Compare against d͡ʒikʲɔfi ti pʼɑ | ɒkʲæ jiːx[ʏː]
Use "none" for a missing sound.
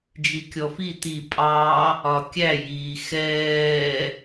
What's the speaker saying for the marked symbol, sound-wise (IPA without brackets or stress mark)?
ɛː